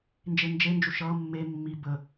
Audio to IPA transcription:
n d͡ʒ e n d͡ʒ e n d͡ʒ u ʃ ʌ mː e mː i b ə

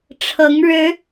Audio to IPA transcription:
ʈ͡ʂʰ ɤ˨˦ ŋ ɻ ɻ̩˨˦

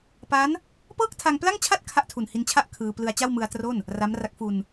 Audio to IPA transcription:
p a˦˥ n | p ɤː˥˩ k̚ tʰ a˧ ŋ p l a˥˩ ŋ t͡ɕʰ a˥˩ t̚ kʰ a˥˩ ʔ tʰ u˨˩ n h i˧ n t͡ɕʰ a˥˩ ʔ kʰ ɯː˧ p l ɯ˧ a̯ t͡ɕ a˥˩ w m ɯ˧ a̯ t r o˥˩ n | r a˦˥ m r a˦˥ k̚ f u˧ n

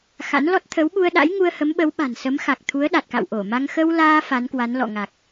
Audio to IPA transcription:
x a̰˧˥ n l ɔ˦˥ t̚ t̪ʰ ə˨˦ w ɓ u˧ ə̯ ɗ a̰˧˥ j ŋ u˧ ə̯ h ə˨˦ m ɓ ə˨˦ w ɓ a̤˨˩ n s ə˨˦ m x a˨˩ k̚ t̪ʰ u˨˦ ə̯ ɗ a˨˩ t̚ k a̰˧˨ w ʔ o˧˩ m a˧ ŋ x ə˧ w l aː˧ f a˨˦ n k w a˨˦ n l ɔ̰˧˨ ŋ a˨˩ k̚

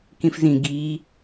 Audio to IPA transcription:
k ĩ f z ĩ ɡ i

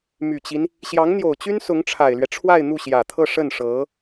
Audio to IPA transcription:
m y˨˩ t͡ɕ i˦ n | ɕ j ɑ˧˥ ŋ n̪ j o˨˩ ʊ̯ t͡ɕ y˥ n s ʊ˧˥ ŋ ʈ͡ʂʰ a˨˩ ɪ̯ l ɥ ɛ˦ ʈ͡ʂʰ w a˥˧ ɪ̯ n̪ u˥˩ ɕ j ä˨˩ t̪ʰ ɤ˥˧ ʂ ə˥˩ n ʂ ɤ˧˥

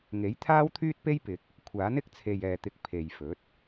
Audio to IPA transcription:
ŋ e˨˥ j t̪ʰ aː˥ w t̪ʰ yː˥ t̚ p e˥ j p ɪ˨ k̚ | kʷʰ aː˨˥ n ɪ˥ k̚ t͡sʰ e˨ j ɛː˨ t̪ ɪ˧ k̚ pʰ e˨ j f ɵ˨˥ t̚

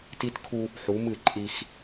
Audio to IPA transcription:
t i˦ t kʰ u˦ | ħ u˨˦ m ɨ˦˨ ǃʼ i˦ x

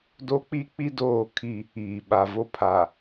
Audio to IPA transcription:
d o˦ k͡p i˦ k͡p i˦ d oː˦˨ kʰ i˦˨ | iː˨ ɓ a˨ v o˦ pʰ a˨

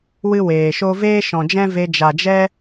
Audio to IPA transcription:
w ɨ˦ w eː˨ ʃ o˦ v eː˦ ʃ ɔ̃˨ d͡ʒ ɛ̃˦ v e˧ d͡ʒ a˨ d͡ʒ ɛ˦

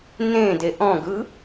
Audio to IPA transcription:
n ẽ d e ʔ ɔ̃ ɡ ɯ

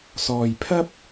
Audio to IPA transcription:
s ɔː˧ j pʰ ɐ˥ p̚

